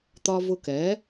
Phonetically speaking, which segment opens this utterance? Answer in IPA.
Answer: t̪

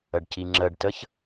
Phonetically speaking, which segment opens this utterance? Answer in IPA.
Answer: ə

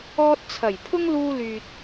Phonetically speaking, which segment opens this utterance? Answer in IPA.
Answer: ɔː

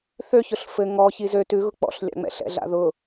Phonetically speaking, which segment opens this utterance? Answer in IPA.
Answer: θ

